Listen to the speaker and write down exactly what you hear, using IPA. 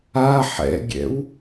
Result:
a ħ ɛ̰ ɡʲ ɛ̰ w

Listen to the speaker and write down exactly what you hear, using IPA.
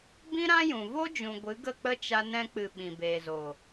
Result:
b ĩ˦ ɾ ã˦ j ũ˨ v o˦ d͡ʒ ũ˨ ɡʷ ɨ˨˦ ɡ ə˦˨ k͡p ə˦ t͡ʃ a˧ n ɛ̃˧ k͡p ɨ˨ ɓ ĩ˨ b eː˨ z o˨

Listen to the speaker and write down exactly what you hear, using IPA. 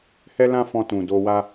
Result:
h ɛ˦ l ã˦ f ɔ̃˧ t ũ˨ d o˧ w a˦

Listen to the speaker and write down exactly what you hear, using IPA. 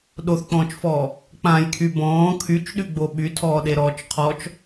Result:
ɗ o θ k͡p ɔ̃ː t͡ʃ f ɔː | k͡p ã j kʰ y b ɔ̃ː kʰ y t͡ʃ ɗ y ɡ͡b o ɓ y tʰ ɔː ɗ e ɾ ɔː t͡ʃ qʰ ɔ t͡ʃ

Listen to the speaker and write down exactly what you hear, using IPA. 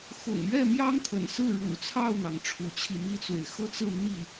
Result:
x ʊ̰˨˩ ŋ ɥ ɛ˥˩ m j ɑ˥ ŋ t̪ʰ ə̰˨˩ n s ɹ̩˥˩ ɻ ṵ˨˩ t͡sʰ ɑ˥˩ ʊ̯ n̪ ɑ˩ ŋ ʈ͡ʂʰ u˧˥ t͡ɕʰ i˧ m i˥ t͡s w e˨ ɪ̯ x ɤ˥˧ t͡s ɹ̩˥˧ n̪ i˥˩

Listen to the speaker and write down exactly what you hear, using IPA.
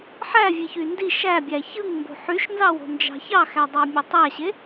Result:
ħ æ vʲ e ç y n d i ʃ æ bʲ æ ç ɯ ŋ m b o̤ ħ y ʃ n z ɑ w o̤ n d͡ʒ ɑ̤ ç ɑ x æ dˤ ɑ mʲ e tˤ æ ɕ e

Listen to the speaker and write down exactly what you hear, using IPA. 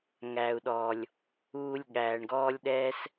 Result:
ŋ æ˨ u̯ ɗ ɔː˨ lʲ | uː˧ lʲ ɠ æː˨ ɳ ɡ ɔː˦ lʲ ɗ ɛː˦ s

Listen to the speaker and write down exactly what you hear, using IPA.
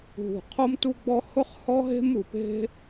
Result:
ɦ ṳ˩ qʰ o˥ m t u˥ ɡ͡b ɔ˥ h ʊ˥ χ h ɔ˥ ɦ e̤˥ m u˩ p e̤˥

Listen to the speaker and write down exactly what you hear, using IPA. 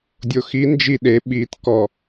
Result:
dʲ o x i n d͡ʒ i ɗ e ɓ i t k ɔ

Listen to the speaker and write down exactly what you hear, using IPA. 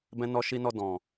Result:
b ɛ̃˧ n ɔ˧ ʃ i˧ n ɔ˧ d ɔ̃˨

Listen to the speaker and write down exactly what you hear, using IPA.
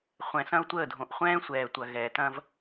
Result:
χʷ ɛ̃˨ s ɐ̃˦ ʊ̯ tʷ əː˦˨ dʱ õ˨ ʔ χʷ ɛ̃ː˦ sʷ ɛː˨ tʷ ɐ˨ ɣ ɛ˨ t ɐ̃˦ v

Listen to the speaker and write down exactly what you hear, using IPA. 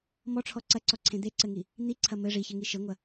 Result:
m ɔ ʈ͡ʂʰ ɔ ǀ ɐ ǀ ɔ ǀʰ ẽ d̪ e ǀ ɘ ŋ i | n̪ i ǀʰ ɐ m ɘ ʐ i ç ɘ ŋ i ʃ ɘ ŋʷ ɐ

